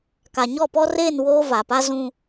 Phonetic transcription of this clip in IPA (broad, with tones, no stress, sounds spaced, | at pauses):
k a˨ ɲ ɔ˦˨ p ɔ˦ r eː˦˨ n w oː˦ v a˨ p a˦ z ũ˦